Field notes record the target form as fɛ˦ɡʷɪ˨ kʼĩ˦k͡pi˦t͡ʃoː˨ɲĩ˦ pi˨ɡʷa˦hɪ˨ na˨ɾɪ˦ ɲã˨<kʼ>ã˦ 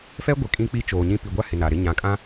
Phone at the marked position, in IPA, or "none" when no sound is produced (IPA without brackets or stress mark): kʼ